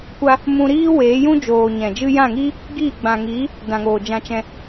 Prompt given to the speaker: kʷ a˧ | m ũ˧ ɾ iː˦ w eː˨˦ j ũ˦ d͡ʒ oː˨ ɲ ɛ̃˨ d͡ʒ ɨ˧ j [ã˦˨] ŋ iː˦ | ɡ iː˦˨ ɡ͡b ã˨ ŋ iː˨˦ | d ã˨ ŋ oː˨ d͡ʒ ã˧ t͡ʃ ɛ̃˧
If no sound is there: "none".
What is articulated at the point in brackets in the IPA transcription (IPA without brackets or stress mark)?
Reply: ã˦˨